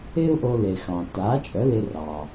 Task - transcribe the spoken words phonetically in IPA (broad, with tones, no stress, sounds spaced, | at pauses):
ɪː˥ u̯ ʔ o˧ l e˩ x ɑ̃˩ t aː˩˥ t͡ʃʼ œ˩˥ l ɪ˧ r ɑ˩